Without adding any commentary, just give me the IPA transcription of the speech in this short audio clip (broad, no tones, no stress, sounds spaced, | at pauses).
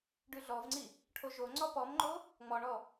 ɖ ʉ ɮ ɔ v ŋ͡ǀ i | ʈʰ o ʒ o ŋ͡ǀ ɔ p ɔ m ŋ͡ǃ o | ŋ͡m ɔ ɳ ɔ